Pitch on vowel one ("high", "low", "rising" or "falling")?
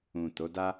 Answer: low